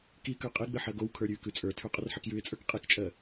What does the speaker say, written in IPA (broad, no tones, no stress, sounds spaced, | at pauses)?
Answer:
k i k ə˞ qʼ i ɡ͡b ɘ ħ ɜ ɡ o w kʰ ə˞ ɾʲ ʉ k ʉ t͡sʼ ə˞ tʰ ʉ qʼ ə r ħ ɘ k j ʉ ɪ̯ t͡sʼ ə˞ k qʼ i k t͡ʃʼ ɜ